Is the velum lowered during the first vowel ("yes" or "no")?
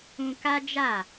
yes